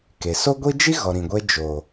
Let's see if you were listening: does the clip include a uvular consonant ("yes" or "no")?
no